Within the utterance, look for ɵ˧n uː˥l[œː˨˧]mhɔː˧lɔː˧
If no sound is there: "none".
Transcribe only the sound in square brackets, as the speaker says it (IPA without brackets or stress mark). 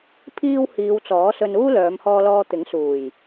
œː˨˧